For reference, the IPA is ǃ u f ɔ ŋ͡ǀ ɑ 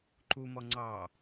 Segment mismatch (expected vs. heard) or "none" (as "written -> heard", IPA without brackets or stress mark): f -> m